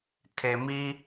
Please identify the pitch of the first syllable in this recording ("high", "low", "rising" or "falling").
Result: low